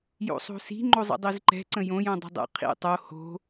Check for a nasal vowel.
present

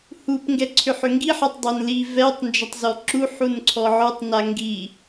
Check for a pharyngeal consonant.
present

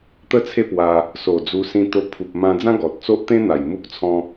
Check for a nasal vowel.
present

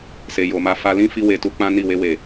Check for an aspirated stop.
absent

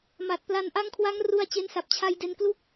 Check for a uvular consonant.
absent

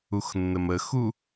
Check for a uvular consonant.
absent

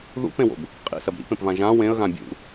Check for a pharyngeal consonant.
absent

